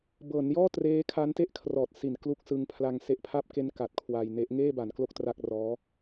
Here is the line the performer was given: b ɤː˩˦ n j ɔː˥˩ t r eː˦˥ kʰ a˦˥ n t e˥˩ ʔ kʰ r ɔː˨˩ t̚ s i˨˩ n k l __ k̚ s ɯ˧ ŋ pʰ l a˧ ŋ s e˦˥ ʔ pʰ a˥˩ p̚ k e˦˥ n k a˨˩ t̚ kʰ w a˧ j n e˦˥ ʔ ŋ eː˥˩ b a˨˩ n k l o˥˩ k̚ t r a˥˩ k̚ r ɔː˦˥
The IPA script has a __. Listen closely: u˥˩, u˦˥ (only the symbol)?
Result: u˦˥